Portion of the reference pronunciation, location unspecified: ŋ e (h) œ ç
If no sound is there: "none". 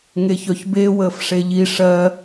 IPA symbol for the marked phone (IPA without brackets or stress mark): ç